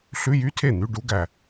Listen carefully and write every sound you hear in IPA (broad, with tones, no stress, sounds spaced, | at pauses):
ɬ ʉ˧˥˧ j y˧˥˧ tʰ e˥˩ n̪ y˧˥˧ ɖ u˦˥ ɡ æ˨˩